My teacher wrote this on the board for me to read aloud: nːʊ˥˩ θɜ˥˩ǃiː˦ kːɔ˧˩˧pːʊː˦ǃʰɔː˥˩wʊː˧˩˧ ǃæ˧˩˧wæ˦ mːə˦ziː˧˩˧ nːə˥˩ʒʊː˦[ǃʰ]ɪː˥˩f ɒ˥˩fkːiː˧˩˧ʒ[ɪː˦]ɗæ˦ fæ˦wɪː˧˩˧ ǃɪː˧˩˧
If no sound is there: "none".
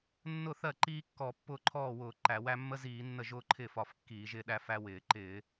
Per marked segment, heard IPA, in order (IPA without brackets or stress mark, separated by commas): ǃʰ, ɪː˦